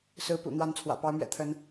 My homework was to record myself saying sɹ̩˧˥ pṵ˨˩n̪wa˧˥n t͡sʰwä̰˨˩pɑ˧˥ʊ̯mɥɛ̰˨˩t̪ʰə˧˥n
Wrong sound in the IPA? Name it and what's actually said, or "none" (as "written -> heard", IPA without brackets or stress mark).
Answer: none